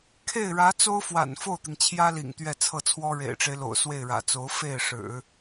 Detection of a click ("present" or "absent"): absent